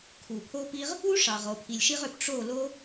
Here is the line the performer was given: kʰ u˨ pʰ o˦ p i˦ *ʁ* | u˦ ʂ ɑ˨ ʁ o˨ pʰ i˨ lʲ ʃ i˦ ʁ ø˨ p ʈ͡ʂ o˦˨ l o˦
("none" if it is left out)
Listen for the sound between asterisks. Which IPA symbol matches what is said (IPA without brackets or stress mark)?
ʁ